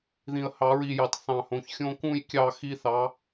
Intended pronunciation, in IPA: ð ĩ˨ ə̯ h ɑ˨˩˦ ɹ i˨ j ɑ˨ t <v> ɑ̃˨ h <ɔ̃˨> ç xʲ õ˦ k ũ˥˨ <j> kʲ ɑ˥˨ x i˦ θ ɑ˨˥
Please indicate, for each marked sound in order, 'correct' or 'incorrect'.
incorrect: θ, incorrect: õ˨, correct

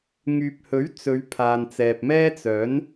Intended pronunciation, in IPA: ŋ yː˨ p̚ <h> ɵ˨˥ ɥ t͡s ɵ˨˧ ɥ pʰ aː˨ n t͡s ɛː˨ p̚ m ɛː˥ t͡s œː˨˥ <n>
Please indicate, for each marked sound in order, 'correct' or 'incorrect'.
correct, correct

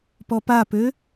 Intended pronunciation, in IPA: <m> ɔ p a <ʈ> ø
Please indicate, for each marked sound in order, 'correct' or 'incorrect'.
incorrect: p, incorrect: p

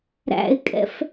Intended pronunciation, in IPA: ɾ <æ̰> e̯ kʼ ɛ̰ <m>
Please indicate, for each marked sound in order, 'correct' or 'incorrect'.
correct, incorrect: f

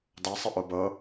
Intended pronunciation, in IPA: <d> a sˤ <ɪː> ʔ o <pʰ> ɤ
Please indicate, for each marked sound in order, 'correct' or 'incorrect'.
correct, incorrect: ɪ, incorrect: b

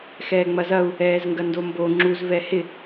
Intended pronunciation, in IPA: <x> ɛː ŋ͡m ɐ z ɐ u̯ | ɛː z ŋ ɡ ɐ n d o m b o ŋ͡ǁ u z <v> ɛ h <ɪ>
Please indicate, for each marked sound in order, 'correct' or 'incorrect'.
correct, correct, correct

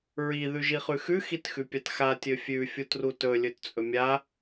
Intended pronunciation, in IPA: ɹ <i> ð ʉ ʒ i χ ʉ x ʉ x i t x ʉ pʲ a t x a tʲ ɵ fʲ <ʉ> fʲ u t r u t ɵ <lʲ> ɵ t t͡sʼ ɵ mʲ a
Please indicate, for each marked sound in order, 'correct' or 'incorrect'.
correct, correct, correct

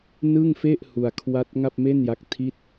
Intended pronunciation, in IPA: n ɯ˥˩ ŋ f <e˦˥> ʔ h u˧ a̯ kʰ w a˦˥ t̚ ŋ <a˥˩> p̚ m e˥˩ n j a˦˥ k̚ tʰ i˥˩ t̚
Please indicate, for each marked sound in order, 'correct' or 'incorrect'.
incorrect: e˥˩, correct

